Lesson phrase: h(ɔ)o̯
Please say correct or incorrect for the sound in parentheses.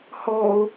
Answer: correct